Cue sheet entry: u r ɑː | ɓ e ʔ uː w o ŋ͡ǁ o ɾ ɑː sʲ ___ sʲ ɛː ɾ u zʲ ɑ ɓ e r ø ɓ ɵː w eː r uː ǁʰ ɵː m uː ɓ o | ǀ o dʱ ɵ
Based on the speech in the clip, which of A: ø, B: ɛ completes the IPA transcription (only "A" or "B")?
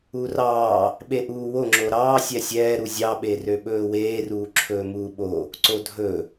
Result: B